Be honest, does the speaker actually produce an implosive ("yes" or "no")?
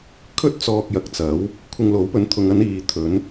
no